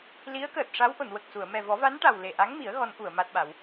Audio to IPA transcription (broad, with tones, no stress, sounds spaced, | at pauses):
l i˧˥ ə̯ k əː˨˩ t̚ ʂ a˧˥ w ʔ o˨˩˨ n w ə˨˩ k̚ s u˨˩˨ ə̯ m ɛ˨˩ v ɔ˨˩˦ v a˧˥ n ʈ a˨˩ w l e˨˩ ʔ a˧˥ ŋ m i˨˩˦ ə̯ ɣ ɔ˧˥ n ʔ u˨˩˨ ə̯ m a˦˥ t̚ ɓ a˨˩˦ w